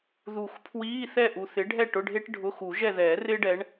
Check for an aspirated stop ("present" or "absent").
present